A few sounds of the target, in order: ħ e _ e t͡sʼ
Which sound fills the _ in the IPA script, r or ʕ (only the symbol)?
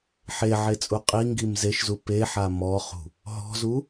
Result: ʕ